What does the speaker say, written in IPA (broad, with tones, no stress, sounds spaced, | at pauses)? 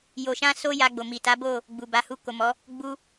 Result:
j o˧ ʃ ã˦ s o˦ j a˧ ɡ͡b o˨ m i˨ t a˨˦ b o˦˨ | ɡ͡b u˨ b a˨˦ h u˧ k o˨ m ɔ˨˦ | ɡ͡b u˦